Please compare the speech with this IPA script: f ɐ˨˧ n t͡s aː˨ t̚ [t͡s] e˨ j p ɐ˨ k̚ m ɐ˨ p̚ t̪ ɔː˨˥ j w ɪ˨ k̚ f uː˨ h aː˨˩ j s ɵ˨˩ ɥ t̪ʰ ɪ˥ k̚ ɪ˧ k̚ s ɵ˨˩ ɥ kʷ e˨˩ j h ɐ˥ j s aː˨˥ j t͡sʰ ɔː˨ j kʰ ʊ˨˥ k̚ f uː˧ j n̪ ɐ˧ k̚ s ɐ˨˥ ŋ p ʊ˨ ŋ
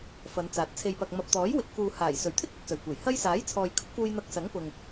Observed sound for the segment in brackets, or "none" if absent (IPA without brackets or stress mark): t͡sʰ